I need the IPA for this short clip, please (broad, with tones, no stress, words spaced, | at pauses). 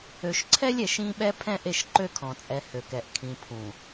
ø˨ʃǀʰɛ˦lʲɛ˨ʃ ĩ˦ɓɛ˦ pʰɛ̃˦ʔe˦˨ʃǃø˦kʰɔ̃˨ t͡sʼɛ˨ hø˨kɛ˨ʔ kʰĩ˨pʰũ˨